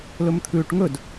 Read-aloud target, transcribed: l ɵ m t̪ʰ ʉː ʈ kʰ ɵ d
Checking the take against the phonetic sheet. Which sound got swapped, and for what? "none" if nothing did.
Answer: kʰ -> ŋ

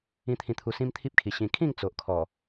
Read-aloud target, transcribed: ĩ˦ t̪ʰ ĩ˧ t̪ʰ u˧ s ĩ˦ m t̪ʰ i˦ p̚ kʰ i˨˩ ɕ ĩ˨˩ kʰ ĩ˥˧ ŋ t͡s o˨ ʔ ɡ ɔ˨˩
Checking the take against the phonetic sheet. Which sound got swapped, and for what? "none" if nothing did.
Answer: ɡ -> kʰ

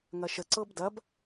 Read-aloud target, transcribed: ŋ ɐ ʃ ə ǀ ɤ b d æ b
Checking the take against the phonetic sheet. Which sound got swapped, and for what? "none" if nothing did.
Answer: æ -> ɐ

